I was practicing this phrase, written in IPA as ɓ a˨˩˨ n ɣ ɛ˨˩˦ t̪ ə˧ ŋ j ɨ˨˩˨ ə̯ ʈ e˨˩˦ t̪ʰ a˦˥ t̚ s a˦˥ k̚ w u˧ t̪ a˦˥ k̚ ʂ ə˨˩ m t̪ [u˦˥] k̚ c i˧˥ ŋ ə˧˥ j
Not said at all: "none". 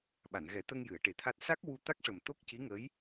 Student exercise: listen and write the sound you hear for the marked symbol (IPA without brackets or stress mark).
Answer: o˦˥